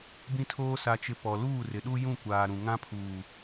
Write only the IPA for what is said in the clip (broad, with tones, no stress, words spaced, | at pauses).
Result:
bĩ˦tʰoː˦ sa˨t͡ʃɪ˨ pɔ˨ luː˦˨rɪ˨ɗu˦ jũ˦˨ kʷaː˨ ɾũ˨ŋã˦pʰuː˨